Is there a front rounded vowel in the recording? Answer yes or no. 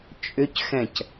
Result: yes